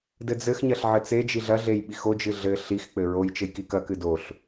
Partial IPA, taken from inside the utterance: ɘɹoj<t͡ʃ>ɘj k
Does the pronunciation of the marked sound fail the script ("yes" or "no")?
no